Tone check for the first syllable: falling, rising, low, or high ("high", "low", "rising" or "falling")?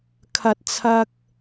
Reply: low